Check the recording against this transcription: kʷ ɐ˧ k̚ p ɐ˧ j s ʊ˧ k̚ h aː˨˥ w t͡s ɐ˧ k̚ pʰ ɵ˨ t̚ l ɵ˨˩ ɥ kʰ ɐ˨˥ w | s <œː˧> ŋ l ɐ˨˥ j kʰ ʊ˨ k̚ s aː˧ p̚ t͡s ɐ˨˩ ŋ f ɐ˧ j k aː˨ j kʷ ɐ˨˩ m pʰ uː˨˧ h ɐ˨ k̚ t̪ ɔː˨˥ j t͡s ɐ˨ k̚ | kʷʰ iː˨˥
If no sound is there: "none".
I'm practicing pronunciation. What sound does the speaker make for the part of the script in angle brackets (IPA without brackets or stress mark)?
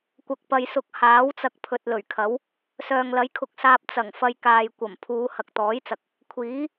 œː˨